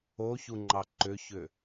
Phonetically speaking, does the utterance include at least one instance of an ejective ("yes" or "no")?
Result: no